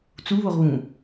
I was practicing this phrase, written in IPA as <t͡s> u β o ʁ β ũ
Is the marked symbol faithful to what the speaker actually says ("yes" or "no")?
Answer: yes